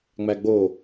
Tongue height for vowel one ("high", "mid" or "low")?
low